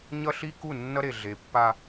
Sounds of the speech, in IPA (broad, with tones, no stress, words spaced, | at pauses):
ɲʌ˦ɬi˦ku˦˨ nːʌ˦ɾe˨ ɮe˨pːa˦